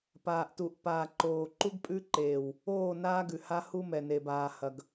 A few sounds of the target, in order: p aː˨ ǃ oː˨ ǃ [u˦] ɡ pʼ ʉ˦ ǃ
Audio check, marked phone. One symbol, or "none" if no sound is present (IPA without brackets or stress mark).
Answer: u˦